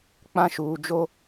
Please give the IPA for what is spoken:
k͡p ã˦ ʃ uː˨ d͡ʒ o˦

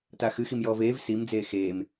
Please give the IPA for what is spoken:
t a x ɨ x i m j ɔː v eː v s i m d͡z eː x eː m

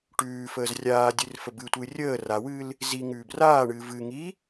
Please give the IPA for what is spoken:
ʈ ʉː f əː z rʲ aː dʲ ɨ r f ə b ɨ tʷ ɨː rʲ əː r a w ɨː l | z i ŋ ʉː b r aː ɳ ɨː v ɨ ŋ i

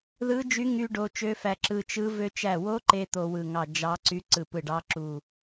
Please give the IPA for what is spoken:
ð ɯ˦˥ d͡ʒ y˦˥ ŋ y˧ ɖ o˧ t͡ʃ ø˦˥ f æ˧ ǁ ɯ˧ t͡ʃ ɯ˦˥ v ø˧ t͡ʃ æ˧˩ w o˦˥ ǃ e˧ t̪ o˧ w ɯ˧˩ ŋ ɑ˧˩ d͡ʒ ɑ˦˥ ǀ y˦˥ ǀ ɯ˧˩ p ɯ˧˩ ɖ ɑ˦˥ ǁ u˧˩

